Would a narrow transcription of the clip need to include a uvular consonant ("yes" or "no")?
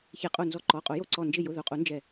yes